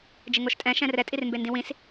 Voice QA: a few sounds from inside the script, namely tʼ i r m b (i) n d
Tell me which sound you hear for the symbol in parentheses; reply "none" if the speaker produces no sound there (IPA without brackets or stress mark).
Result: e